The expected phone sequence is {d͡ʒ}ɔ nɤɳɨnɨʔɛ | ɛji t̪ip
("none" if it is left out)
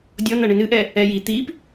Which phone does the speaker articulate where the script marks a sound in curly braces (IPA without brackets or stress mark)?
dʲ